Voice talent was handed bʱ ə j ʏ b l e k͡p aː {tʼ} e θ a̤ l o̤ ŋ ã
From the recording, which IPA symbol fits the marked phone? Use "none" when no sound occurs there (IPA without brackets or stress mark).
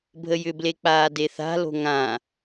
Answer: d